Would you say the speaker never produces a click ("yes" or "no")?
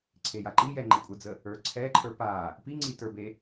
no